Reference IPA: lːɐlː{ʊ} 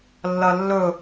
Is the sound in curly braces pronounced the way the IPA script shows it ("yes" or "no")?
no